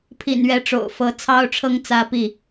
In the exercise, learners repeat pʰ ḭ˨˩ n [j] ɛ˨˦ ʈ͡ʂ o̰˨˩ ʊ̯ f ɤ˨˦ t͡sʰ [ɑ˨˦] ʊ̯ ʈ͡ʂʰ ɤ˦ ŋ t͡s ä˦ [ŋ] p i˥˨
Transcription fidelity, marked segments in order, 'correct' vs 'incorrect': incorrect, incorrect, incorrect

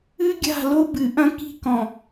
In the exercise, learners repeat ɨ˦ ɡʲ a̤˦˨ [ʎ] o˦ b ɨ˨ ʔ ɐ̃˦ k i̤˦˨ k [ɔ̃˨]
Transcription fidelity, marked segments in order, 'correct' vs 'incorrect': incorrect, correct

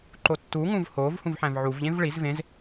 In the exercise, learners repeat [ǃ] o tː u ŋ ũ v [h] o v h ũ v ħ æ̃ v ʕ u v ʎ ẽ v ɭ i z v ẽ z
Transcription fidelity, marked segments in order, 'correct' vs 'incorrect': correct, correct

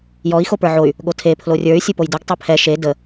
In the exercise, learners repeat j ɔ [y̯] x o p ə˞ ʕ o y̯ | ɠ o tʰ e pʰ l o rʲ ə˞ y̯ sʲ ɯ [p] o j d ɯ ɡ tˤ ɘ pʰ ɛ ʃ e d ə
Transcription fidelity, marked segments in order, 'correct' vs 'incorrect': incorrect, correct

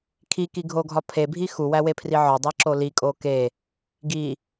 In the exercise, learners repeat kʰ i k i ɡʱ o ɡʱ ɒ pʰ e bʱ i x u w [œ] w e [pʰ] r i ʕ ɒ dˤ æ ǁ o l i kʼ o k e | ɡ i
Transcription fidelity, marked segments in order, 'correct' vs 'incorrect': incorrect, correct

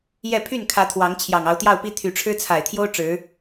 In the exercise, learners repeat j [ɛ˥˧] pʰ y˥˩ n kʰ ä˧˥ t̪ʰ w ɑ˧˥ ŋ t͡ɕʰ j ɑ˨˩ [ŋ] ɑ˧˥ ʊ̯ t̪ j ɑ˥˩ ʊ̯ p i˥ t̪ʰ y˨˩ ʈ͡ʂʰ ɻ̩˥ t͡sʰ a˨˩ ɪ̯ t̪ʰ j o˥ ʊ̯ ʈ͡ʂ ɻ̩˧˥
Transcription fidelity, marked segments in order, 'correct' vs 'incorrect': correct, correct

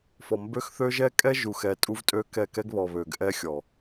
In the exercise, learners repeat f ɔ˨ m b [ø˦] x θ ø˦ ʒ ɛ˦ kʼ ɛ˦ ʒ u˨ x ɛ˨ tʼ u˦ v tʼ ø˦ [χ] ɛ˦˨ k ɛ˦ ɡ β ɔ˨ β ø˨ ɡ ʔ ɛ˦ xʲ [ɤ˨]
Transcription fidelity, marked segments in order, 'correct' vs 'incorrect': correct, incorrect, incorrect

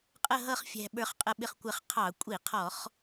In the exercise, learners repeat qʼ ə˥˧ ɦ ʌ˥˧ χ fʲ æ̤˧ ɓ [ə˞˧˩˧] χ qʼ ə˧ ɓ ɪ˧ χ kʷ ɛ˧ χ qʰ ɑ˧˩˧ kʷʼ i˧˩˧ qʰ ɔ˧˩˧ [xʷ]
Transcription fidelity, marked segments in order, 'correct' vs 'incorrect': incorrect, incorrect

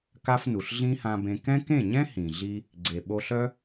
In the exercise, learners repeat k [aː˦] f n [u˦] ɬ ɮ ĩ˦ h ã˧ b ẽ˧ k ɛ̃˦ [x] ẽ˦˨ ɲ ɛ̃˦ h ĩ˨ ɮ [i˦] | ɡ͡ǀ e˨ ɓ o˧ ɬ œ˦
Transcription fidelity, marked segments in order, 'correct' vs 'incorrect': incorrect, incorrect, incorrect, correct

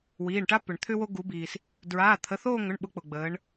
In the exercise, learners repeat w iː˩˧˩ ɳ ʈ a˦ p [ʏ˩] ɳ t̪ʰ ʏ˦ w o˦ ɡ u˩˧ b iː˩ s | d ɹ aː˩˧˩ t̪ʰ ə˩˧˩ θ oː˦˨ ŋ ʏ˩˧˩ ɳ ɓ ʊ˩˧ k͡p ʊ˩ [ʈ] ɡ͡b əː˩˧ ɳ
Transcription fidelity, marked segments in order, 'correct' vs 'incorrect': correct, incorrect

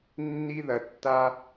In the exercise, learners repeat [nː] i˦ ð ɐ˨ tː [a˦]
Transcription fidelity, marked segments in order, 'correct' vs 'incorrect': correct, correct

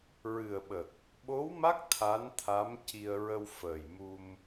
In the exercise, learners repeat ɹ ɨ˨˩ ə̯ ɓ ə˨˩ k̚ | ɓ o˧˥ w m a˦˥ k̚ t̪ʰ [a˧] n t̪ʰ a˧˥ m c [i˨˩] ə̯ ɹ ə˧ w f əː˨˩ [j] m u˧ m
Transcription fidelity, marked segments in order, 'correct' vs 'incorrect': incorrect, incorrect, correct

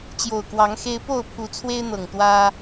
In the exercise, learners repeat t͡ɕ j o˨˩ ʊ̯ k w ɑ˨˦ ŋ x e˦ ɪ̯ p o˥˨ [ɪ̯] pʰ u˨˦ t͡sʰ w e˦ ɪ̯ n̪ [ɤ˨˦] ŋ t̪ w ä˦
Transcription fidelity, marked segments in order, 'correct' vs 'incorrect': incorrect, incorrect

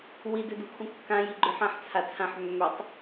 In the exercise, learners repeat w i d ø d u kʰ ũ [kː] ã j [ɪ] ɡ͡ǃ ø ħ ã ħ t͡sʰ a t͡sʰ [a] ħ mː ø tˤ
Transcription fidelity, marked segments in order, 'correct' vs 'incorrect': correct, incorrect, incorrect

